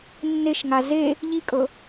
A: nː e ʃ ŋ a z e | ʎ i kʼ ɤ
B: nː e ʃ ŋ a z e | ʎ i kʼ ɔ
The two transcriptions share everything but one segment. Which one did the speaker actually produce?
A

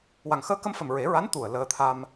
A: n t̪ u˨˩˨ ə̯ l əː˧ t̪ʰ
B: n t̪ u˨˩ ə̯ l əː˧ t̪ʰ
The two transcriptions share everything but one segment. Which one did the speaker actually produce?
B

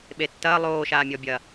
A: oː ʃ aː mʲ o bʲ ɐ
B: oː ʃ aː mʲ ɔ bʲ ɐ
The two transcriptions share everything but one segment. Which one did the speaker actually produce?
B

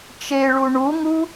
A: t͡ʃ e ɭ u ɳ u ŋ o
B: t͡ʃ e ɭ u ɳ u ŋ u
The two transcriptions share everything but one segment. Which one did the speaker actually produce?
B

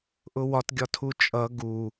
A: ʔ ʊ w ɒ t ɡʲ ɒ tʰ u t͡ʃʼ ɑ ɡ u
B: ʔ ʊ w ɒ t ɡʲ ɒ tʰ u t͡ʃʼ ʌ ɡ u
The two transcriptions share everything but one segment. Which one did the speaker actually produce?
B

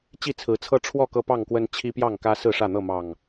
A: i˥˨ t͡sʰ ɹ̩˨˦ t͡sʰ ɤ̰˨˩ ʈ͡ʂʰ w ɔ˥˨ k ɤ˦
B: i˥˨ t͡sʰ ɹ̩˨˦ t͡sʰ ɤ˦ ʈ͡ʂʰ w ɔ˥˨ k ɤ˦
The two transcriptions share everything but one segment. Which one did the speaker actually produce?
B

